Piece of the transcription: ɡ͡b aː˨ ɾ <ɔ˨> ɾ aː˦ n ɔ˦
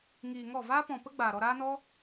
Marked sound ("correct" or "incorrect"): incorrect